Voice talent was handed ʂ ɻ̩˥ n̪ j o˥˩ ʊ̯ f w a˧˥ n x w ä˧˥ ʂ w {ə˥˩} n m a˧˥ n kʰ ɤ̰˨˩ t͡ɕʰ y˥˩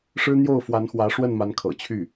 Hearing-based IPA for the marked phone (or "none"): ə˥˩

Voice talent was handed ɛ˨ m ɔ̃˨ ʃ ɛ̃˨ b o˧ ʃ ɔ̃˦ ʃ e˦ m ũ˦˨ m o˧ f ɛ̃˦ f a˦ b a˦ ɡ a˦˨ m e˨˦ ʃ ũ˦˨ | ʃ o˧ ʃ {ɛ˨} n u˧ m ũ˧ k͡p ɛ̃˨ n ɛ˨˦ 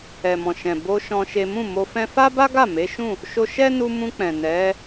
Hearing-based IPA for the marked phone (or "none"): ɛ˦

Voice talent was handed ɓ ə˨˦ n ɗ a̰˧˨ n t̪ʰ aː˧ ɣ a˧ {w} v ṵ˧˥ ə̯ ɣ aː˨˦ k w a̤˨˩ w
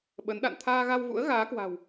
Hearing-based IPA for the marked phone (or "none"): w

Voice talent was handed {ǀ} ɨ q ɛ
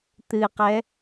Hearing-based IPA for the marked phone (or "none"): t̪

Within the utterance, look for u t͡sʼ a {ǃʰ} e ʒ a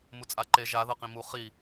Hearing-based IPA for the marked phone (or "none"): ǃ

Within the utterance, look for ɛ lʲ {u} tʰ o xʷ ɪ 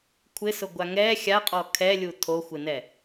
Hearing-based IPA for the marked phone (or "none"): u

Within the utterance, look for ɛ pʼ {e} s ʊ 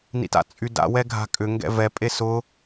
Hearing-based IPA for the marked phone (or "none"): e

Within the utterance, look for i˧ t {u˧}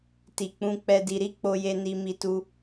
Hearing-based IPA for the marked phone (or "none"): u˧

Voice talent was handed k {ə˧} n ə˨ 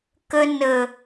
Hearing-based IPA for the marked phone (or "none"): ə˧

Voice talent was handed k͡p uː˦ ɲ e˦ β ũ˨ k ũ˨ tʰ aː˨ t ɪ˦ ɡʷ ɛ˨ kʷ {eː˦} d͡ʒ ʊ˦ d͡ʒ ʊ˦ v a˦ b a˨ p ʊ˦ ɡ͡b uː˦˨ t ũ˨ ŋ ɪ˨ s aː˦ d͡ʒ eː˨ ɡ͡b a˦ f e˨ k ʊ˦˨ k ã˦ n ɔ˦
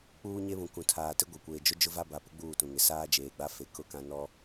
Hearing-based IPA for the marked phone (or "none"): eː˨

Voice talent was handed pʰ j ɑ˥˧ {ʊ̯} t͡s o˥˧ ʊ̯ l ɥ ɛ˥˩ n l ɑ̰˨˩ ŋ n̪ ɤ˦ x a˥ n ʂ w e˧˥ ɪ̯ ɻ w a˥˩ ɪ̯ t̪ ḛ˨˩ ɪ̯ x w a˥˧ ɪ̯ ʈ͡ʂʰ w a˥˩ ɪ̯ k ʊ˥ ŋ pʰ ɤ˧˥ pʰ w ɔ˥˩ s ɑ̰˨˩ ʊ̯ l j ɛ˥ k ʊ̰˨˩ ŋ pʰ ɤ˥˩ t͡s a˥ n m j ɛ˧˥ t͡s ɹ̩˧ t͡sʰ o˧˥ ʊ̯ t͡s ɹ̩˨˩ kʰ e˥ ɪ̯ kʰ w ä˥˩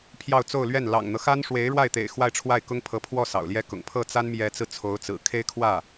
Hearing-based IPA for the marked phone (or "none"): ʊ̯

